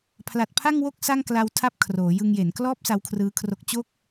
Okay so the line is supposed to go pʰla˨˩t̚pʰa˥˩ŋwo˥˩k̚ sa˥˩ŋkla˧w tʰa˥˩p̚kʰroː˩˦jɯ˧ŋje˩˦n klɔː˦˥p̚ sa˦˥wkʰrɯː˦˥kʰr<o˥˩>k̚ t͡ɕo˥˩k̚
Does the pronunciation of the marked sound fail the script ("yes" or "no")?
yes